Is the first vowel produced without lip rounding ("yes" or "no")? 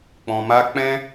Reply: no